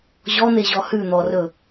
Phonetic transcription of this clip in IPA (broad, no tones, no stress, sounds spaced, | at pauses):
ʑ ɔ n̪ e ʑ ɔ h ʉ n̪ ɔ r ɵ